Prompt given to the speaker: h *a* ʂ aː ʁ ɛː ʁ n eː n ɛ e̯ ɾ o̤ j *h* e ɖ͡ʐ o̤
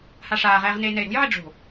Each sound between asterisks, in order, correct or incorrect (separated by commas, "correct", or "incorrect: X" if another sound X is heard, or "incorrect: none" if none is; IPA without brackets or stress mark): correct, incorrect: ʕ